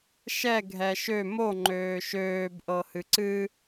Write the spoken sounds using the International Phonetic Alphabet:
ʃ ɛ ɡʱ ɛ ʃ ø m o ŋ͡ǃ øː ʃ øː b ʔ ɤ h ɨ ǀ ɨ

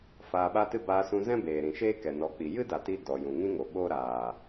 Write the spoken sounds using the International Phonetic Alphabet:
f aː˧ ɓ a˦ t ɨ˦ b aː˧ s ũ˧ z ɛ̃˦ b eː˨ ɾ ĩ˨ ʃ eː˦ k ɛ˨ n ɔ˨˦ k͡p i˨ j ɨ˦ d a˨ t i˧ d ɔ˨ j ũ˨ ŋ ĩ˦ ŋ o˨ ɓ oː˦ ɾ aː˨

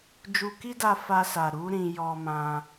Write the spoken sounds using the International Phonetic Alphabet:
d͡ʒ u˧ k i˦ d a˧ f a˧ s a˨ ɾ u˧ ɾ ĩ˨ j ɔ˧ m ã˧

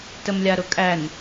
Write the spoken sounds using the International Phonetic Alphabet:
t ə m lʲ a ɾ ʊ kʼ æ n

